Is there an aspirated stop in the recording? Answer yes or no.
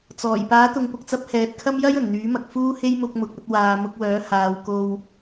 yes